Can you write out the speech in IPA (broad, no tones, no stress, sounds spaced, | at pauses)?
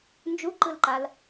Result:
n d͡ʒ u ǃ ɯ l ǃ a l